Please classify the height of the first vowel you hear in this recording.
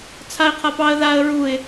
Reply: low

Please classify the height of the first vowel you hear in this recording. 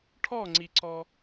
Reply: mid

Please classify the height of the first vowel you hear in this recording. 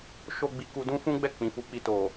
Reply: mid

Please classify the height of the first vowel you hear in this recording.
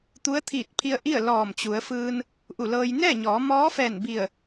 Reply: high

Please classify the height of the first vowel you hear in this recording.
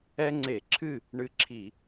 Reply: mid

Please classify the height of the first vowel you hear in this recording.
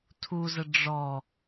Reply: high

